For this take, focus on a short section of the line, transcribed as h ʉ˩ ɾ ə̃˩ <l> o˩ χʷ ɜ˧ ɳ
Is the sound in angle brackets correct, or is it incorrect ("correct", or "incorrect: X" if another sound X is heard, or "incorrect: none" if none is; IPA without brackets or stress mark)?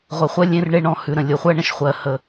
incorrect: lʲ